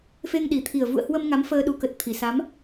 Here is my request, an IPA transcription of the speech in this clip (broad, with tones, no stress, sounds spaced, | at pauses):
f e˧ ŋ ɗ i˨˩ t̪ʰ i˨˩ ə̯ v ṵ˧˨ ə̯ h w ə˧ m ŋ a˨˦ m f əː˧ ɗ u˨˦ k ə˨˩ t̚ t̪ʰ i˨˩ s a˨˦ m